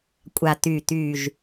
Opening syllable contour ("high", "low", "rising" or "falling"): low